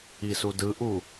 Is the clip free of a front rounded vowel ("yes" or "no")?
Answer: yes